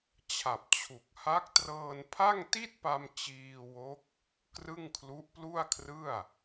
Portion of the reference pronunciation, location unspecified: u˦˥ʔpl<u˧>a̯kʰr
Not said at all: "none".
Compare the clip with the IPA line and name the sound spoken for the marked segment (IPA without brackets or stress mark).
u˥˩